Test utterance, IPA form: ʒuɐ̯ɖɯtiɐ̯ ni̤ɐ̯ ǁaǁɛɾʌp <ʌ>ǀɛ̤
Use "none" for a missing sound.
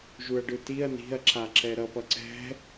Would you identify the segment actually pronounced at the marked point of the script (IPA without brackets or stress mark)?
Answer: ʌ